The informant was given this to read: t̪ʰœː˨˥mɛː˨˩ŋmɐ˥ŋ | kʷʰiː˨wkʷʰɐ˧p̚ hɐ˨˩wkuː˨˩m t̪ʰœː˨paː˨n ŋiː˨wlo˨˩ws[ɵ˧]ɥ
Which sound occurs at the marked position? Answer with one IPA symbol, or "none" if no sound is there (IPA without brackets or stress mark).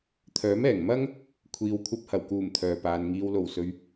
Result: ɵ˨